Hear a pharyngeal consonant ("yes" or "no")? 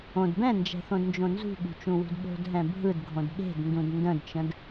no